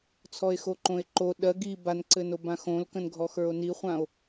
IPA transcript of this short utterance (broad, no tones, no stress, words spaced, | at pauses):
t͡sʰɔe̯xoǃõe̯ǃo ɗɜ ɡi banǀɘno bãxõlkə̃nɡʱɔ xə˞o̯niχʷão̯